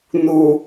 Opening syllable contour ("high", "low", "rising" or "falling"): low